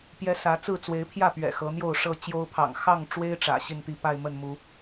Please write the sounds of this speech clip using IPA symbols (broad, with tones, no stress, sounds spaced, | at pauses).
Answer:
p j ɛ˦ s ä˨˦ t͡s ɹ̩˥˨ t͡s w e˨˦ ɪ̯ pʰ j ä˥˨ p ɥ ɛ̰˨˩ x ɤ˨˦ n̪ j o˥˨ ʊ̯ ʂ ɤ˥˨ t͡ɕ j o˦ ʊ̯ pʰ ɑ̰˨˩ ŋ x ɑ˥˨ ŋ ʈ͡ʂ w e˦ ɪ̯ ʈ͡ʂ ä̰˨˩ ɕ i˥˨ n t̪ i˥˨ p a˥˨ ɪ̯ m ə˥˨ n m u˨˦